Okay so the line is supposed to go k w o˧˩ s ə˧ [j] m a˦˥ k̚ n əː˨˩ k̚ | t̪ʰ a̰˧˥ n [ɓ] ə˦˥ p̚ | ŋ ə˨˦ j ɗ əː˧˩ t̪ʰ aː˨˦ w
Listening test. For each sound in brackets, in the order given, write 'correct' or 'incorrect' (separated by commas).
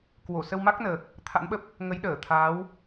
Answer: incorrect, correct